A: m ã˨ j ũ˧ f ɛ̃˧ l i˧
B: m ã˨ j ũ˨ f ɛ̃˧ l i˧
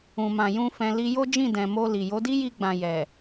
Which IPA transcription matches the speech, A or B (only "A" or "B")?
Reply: A